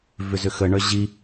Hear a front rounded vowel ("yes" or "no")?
yes